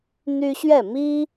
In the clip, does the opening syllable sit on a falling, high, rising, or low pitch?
high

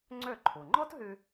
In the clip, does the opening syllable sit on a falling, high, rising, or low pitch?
falling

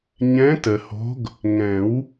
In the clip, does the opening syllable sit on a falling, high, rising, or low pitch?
rising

